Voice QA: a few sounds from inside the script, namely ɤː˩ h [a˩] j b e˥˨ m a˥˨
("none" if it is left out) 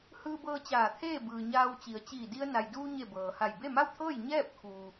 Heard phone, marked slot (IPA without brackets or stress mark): a˧˩